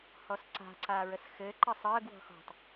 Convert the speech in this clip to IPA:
hɔsǀa̤ ǀaːɹəsxɘː ǃəsˤəːɡ wɔ̤xɔ̤tˤ

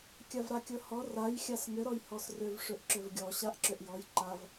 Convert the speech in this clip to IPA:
kʲavɾakʲɤhɔ raj xʲasŋʏ ɾɔjhɔsrʏv ʂʏʔǁʏvɡʲɔ ɕaʔǁʏʔjɔj ǃav

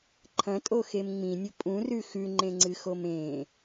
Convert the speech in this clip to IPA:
ǃʰɐ̃tʼoxem ŋ͡mĩnʲɵ pʼũrʉ xʉŋ͡ǃẽŋ͡ǀɨxom ẽ

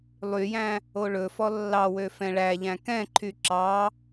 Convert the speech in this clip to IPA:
lˠyjæ̃ | oɭɵfɔ lːɑwø fɛ̃ɭæʎæ̃ kɛ̃ǃʰy ǁɑ

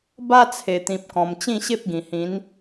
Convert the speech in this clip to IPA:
ba˦t͡sʰe˨˩t̪ĩ˨p̚kɔ̃˨˩m t͡ɕĩ˥˧ɕe˦p̚ɡĩ˨˩hĩ˨˦n

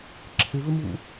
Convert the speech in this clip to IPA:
ǁʰɪvɪmvṵ

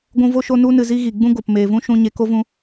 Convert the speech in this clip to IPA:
ɡʷũ˧ vo˧ʃo˧ nu˧nɨ˨ zi˦ɣi˨ ɡ͡bũ˦ɡo˨p meː˨vũ˦ʃũ˧ ɲe˧ko˦vũ˧

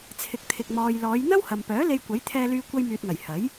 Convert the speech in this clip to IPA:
t͡sʰɪ˨k̚t̪ʰɪ˨k̚mɔː˨j lɔː˨˧jn̪ɐ˥whɐ˨mpœː˨˥ le˧jkʷɐ˨˥j t̪ʰɛː˧lyː˧ kʷɐ˧jmyː˨t̚ŋɐ˨˩j hɐ˨˥j

